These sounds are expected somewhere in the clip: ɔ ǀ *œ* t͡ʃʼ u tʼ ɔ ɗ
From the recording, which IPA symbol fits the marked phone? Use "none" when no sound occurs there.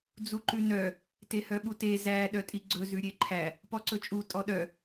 ɵ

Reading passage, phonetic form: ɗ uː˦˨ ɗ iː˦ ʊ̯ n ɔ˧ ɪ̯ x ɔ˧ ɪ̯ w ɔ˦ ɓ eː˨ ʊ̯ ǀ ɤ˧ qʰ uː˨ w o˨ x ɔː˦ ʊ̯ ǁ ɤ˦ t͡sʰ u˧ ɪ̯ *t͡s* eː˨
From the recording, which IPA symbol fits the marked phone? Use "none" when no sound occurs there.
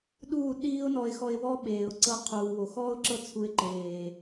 ǃ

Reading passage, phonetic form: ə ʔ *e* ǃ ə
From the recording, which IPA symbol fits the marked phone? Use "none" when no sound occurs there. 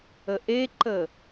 e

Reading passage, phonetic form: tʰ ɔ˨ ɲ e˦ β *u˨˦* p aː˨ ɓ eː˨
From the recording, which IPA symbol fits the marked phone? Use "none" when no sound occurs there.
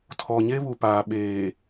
u˨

